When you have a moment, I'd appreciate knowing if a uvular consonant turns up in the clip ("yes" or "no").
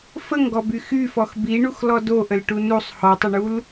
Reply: no